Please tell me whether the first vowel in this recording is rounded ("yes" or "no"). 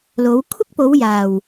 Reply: yes